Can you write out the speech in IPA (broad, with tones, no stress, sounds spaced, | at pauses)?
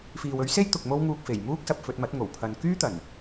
f iː˨ w ɵ˨˥ ɥ s e˥ j t̪ ʊ˨ k̚ m o˧ w ŋ uː˨ k̚ f e˨˩ j m uː˥ k̚ s ɐ˨ p̚ f ɵ˧ t̚ m ɐ˨˥ t̚ ŋ o˨˩ w pʰ ɐ˨˧ n k yː˥ t̪ ɐ˨˩ n